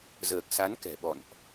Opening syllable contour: low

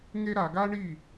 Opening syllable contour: high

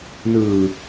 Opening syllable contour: low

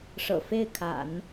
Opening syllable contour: low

